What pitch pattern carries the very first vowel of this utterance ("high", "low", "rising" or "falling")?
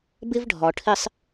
high